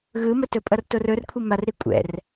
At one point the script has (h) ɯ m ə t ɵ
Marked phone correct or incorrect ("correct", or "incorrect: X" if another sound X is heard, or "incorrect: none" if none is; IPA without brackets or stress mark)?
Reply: incorrect: ɣ